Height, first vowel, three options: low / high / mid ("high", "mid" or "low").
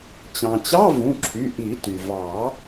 low